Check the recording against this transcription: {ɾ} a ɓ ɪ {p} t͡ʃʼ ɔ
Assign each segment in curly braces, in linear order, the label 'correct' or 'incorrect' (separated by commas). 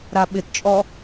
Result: correct, incorrect